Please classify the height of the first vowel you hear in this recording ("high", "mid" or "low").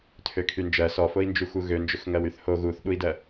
mid